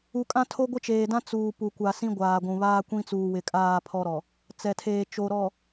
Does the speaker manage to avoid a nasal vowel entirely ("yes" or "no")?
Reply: no